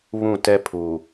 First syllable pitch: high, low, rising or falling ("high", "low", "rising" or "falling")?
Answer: falling